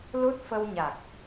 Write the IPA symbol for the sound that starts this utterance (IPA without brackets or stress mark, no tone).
l